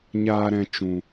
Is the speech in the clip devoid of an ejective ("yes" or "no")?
yes